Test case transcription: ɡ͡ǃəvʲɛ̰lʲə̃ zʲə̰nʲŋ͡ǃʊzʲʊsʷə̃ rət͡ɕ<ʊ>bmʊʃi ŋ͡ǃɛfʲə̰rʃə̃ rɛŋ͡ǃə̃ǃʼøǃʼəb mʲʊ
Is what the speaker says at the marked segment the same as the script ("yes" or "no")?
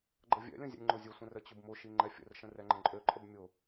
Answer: yes